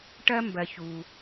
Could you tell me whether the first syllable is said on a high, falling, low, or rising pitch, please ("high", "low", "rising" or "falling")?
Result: high